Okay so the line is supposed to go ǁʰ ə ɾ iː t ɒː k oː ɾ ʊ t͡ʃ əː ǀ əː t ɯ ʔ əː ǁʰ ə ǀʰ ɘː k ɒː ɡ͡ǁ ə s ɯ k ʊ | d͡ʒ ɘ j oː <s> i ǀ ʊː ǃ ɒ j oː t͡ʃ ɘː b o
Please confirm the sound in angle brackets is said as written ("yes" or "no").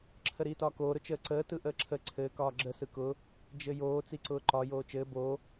no